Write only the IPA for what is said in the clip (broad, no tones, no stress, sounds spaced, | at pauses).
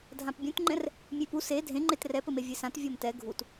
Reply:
dʱ ã p bʲ ũ t ŋ͡ǃ ɛ̃ r | mʲ e p u s e dʱ ẽ ŋ͡ǃ e t r ɛ p ɘ m e vʲ e s ã t vʲ ɔ m t ɛ ɡʱ u t